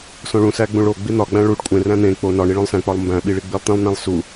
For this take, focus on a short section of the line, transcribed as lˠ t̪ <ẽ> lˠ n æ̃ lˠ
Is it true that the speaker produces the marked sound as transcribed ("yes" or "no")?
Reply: no